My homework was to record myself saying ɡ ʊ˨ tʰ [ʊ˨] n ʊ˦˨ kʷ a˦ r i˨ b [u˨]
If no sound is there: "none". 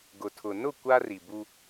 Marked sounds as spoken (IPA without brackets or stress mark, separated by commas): ʊ˨, u˦